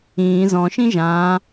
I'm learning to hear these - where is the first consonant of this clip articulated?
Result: tongue tip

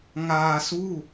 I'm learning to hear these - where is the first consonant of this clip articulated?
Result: velum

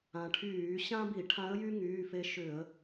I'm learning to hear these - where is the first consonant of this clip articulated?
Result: retroflex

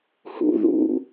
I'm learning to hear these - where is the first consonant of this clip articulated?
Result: throat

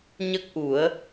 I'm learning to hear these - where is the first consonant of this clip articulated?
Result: palate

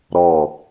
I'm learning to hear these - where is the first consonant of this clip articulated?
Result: tongue tip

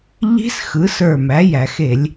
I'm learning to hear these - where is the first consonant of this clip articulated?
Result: palate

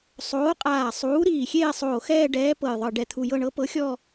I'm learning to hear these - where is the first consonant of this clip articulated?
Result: tongue tip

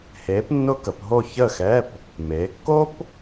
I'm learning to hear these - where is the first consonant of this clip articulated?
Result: throat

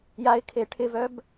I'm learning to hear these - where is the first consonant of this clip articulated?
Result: palate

